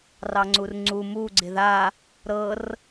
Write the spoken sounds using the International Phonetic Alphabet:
r ɑ ŋ͡ǀ u r ŋ͡ǀ u m u ɡ͡ǀ ɪ ð a | ɾ ɤ r

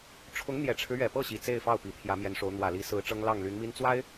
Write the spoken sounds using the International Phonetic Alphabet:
ʈ͡ʂʰ ʊ˧˥ ŋ n̪ j ɛ˨˩ ʈ͡ʂʰ ɻ̩˦ ɥ ɛ˨˩ p ɤ˥˩ ɕ i˨˩ t͡s e˥˧ ɪ̯ f ɑ˥˩ ʊ̯ p i˨˩ t̪ʰ j ä˧˥ m j ɛ˧˥ n ʂ o˧˥ ʊ̯ n̪ w ä˨˩ l i˧˥ s ɹ̩˧˥ ʈ͡ʂ ɤ˥ ŋ l ɑ˥˩ ŋ l y˧˥ n m i˥ n t͡s w a˥ ɪ̯

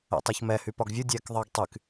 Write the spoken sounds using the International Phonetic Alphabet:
ɛ̰ tˤ e ç m ɛ h y p ɒ ɡ vʲ ɯ dʲ ɛː k ðˤ əː ɡ tˤ y k

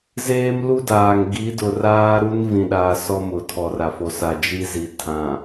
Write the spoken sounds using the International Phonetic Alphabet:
z eː˦ m l u˦ d aː˨ ŋ ɡ i˨˦ d ʊ˨ r aː˦ ɾ u˦ n v ĩ˨ ɗ aː˨ s ɔ˦ m ʊ˨ tʰ ɔ˨ r a˨ f o˨ s a˨ d͡ʒ i˦ z i˨ tʰ ã˨

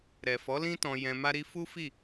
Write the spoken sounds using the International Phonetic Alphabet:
ɾ ɛ˨ f ɔ˨˦ l ĩ˦ t ɔ̃˧ j ɛ̃˧ m a˦ ɾ i˦ f u˦ f i˦˨

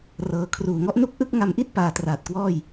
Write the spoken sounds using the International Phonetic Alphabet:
r ɤː˧ kʰ r uː˨˩ ŋ ɔ˥˩ ʔ n u˥˩ k̚ ʔ ɯ˥˩ k̚ ŋ a˧ m ʔ i˥˩ t̚ p aː˧ t r aː˨˩ t̚ k w ɔː˥˩ j

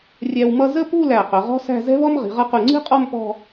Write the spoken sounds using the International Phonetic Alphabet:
rʲ æ˧ w m ʌ˥˧ z ə˥˧ p u˥˧ l æ˧˩ q ʊ˩˧ ʁ ɔ̤˥ s æ̤˥˧ z ɛ̤˥ β ɔ˥ m ʁ i̤˩˧ ʁ ʌ˧ q u˧˩ ŋ͡ǀ i̤˥ qʼ ɔ˥˧ m p ɔ̤˥˧

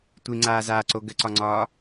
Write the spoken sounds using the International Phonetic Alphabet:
tʷ i ŋ͡ǀ aː z aː ǀ o ɡ ə ǀ ɒ ŋ͡ǀ ɒː

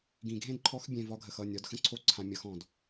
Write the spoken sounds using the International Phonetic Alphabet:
ɡ ĩ˨ ɡʱ ẽ˦ d ǃʰ ɔ˧ x bʲ ẽ˨ v ɒ˧ ɡʱ ə˨ x ʌ˦˨ nʲ ɒ˨˦ d x ə̃˦ ǀʰ o˦ ǀʰ ã˧ mʲ ʌ˧ x ɔ̃˨ d

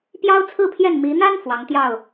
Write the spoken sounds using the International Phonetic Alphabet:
p j ɑ˥ ʊ̯ t͡sʰ ɹ̩˥˧ pʰ j ɛ˥˩ n m i˧˥ n̪ a˥ n f w ɑ˧˥ ŋ t̪ j ɑ˥˩ ʊ̯

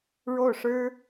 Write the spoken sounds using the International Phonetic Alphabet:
ɻ o˥˩ ʊ̯ ʂ ɻ̩˥

